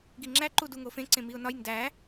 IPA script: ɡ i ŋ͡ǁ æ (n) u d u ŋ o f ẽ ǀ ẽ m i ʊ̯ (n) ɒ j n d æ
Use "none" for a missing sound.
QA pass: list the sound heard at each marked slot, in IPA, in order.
ǃ, n

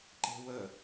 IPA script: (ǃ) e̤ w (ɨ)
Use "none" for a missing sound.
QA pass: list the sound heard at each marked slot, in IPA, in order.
ǃ, ə

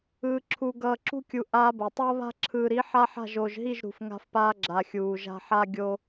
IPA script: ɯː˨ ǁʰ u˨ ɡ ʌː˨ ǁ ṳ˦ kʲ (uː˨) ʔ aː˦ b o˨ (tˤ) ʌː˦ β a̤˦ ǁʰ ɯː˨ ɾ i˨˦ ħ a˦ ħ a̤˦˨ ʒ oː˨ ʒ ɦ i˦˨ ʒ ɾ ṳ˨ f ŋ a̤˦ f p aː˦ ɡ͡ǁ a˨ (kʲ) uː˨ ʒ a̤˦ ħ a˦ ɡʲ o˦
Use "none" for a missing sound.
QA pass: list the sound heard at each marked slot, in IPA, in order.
u˨, tˤ, xʲ

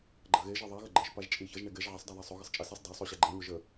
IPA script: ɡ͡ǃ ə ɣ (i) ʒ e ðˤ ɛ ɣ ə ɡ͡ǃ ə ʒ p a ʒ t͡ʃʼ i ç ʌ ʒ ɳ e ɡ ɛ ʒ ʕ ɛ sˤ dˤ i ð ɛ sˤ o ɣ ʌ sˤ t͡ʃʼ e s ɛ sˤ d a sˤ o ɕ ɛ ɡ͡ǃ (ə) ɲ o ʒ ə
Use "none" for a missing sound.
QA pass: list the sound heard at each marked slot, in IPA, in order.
e, ə

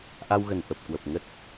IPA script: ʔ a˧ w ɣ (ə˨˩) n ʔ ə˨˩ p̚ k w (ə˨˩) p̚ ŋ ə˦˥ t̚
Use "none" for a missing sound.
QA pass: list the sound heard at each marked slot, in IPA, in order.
ə˨˩, ə˨˩

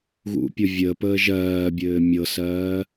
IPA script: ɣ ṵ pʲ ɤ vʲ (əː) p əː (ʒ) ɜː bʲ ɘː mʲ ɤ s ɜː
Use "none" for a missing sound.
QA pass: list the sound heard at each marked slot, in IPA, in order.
ə, ʒ

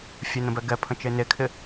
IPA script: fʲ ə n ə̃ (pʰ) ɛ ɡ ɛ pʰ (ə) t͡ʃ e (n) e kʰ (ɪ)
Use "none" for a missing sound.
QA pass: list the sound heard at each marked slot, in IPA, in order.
b, ə̃, n, ɪ

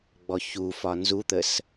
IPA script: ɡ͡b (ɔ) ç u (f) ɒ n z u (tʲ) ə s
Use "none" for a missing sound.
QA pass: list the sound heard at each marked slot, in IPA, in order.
ɔ, f, t̪

